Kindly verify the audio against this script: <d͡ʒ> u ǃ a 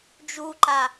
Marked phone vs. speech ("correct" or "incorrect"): correct